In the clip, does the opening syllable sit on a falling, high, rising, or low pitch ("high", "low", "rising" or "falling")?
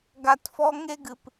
low